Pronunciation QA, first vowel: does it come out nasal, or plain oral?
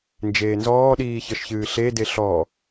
oral